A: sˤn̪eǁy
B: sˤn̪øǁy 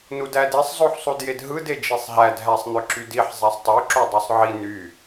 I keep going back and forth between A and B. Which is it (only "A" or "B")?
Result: B